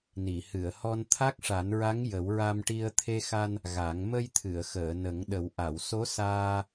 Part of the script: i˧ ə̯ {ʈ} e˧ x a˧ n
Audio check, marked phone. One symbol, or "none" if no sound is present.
t̪ʰ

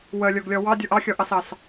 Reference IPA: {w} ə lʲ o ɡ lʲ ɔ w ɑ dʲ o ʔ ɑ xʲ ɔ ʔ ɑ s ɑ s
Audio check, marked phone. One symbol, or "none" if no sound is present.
w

